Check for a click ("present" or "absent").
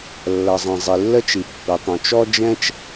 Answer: absent